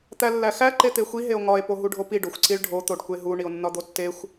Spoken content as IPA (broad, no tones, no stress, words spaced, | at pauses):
t̪ælːæxæ ǃet̪exʷi ɦeo̯ŋɒe̯ poɦuɖʱopi ɖoxʷǀiɭɖʱo t̪oɖkʷeɦu ɳio̯nːɒd̪otːexʷ